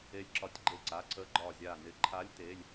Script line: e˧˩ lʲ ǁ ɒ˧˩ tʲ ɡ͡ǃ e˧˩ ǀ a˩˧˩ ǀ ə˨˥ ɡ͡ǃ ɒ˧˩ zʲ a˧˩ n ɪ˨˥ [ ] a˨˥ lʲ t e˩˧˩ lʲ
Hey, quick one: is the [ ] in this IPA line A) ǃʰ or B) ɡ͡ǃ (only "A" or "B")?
A